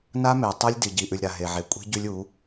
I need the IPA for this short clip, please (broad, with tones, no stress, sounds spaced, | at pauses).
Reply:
n a˦ m e˨ tˤ ɛ˦ lʲ d i˨ ɟ i˨ ʔ ʉ˨ lʲ ɾ a˨ ɦ e˨ ʕ e˨ kʷʼ i̤˦ ɟ ʉ˦ lʲ u˨˦